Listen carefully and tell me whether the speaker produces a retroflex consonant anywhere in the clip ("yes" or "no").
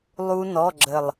no